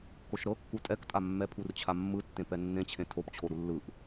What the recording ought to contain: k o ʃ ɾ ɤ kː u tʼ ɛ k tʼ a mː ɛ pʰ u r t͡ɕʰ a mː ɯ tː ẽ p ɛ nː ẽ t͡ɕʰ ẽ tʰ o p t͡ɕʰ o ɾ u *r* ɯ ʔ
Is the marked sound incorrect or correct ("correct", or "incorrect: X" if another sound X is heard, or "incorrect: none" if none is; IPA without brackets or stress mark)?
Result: incorrect: lː